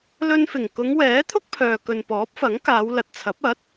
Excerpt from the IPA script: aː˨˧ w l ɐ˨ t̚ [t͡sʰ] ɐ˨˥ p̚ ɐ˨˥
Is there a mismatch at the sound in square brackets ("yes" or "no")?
no